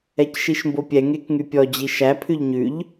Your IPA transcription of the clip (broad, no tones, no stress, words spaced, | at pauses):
ɛcʃiʃmbopʲɛ ŋekŋypʲɔ d͡ʑiʃæ pʰʉʎɲʉʎ